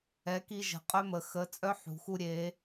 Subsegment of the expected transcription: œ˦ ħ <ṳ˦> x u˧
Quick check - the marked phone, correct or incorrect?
incorrect